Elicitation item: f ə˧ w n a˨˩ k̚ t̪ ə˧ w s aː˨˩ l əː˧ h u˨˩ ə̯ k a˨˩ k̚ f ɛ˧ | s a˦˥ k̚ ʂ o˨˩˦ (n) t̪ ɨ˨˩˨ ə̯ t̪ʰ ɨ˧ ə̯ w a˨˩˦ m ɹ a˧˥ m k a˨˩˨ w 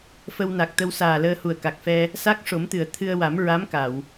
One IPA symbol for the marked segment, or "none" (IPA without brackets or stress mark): m